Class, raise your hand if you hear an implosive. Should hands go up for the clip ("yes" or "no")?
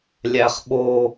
yes